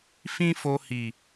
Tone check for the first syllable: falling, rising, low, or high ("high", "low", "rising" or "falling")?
high